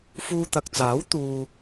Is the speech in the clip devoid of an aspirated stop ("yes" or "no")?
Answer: yes